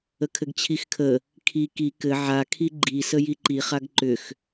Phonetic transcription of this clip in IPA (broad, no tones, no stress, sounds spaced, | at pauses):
ə kʰ ɘ ɡ t͡ɕʰ i x kʰ ə | kʰ i k i k ɘ ʕ a kʰ i ɡ͡ǃ i s ə j i ǃ i χ a ɡ ǃ ʏ x